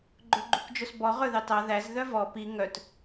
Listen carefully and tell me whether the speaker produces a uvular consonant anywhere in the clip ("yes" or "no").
yes